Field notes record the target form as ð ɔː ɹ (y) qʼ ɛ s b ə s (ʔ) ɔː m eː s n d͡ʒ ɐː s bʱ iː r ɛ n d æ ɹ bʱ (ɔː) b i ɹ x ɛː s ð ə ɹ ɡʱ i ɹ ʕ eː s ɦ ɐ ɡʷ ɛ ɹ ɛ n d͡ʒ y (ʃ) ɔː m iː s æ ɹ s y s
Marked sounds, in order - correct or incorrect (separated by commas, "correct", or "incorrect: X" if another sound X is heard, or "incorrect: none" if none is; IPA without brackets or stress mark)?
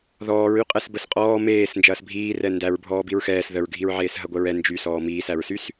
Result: correct, incorrect: qʼ, correct, incorrect: s